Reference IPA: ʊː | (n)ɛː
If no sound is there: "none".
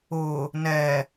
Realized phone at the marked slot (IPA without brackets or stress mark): n